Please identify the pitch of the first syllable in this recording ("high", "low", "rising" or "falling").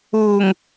low